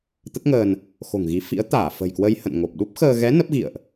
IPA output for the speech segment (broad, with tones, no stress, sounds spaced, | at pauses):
t̪ ə˦˥ t̚ ŋ əː˧ n | x o̤˨˩ ŋ ɣ i˨˦ f ḭ˧˥ ə̯ t̪ aː˧˩ f ə̤˨˩ j k w ə˧ j h ə̰˧˨ n ŋ o˨˩ p̚ ɗ u˦˥ p̚ x əː˧ ɣ ɛ˨˦ n ə˦˥ p̚ ɣ ḭ˧˨ ə̯ ʔ